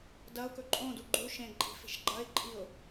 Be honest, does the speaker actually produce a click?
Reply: yes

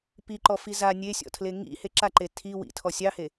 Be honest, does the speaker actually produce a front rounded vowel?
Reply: no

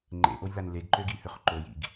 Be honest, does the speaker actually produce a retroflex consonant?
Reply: no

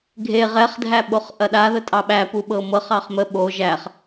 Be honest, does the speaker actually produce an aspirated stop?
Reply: no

